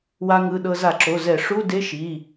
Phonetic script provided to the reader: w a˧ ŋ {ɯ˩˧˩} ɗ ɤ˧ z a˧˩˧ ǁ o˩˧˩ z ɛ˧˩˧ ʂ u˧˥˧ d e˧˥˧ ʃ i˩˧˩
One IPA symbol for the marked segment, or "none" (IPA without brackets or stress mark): ɯ˩˧˩